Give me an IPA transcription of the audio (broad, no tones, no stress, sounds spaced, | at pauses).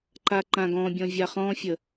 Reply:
ǃ a ǃ ã ɡ ɔ̃ bʲ ɔ̃ vʲ a χ ɔ̃ fʲ ə